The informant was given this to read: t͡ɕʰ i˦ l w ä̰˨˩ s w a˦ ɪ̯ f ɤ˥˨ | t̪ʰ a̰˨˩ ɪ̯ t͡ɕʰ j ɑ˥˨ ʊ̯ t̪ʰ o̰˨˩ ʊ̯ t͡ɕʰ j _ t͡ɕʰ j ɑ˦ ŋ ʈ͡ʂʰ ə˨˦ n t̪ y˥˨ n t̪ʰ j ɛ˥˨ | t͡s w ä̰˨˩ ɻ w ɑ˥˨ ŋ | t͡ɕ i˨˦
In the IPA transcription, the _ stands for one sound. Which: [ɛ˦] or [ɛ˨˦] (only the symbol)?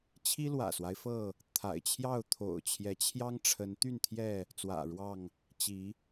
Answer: ɛ˨˦